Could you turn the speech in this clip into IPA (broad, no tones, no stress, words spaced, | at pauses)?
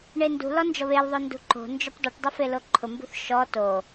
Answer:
ɳendṳlɔ nd͡ʒɔβelðˤo ndṳǃo̤nd͡ʒʊp dˤuʈdˤɪ feloǃʰʊmbṳθ ʃɔ to